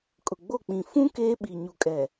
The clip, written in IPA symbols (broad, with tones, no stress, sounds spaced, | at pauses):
kʼ ʊ˨ ɡ͡b o˦˨ k͡p ĩ˨ f ũ˦ k eː˦ ɓ i˨ ɲ u˨ kʼ ɛ˨